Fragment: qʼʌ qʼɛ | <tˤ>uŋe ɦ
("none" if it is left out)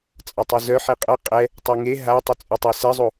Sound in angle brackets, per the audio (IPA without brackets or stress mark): tˤ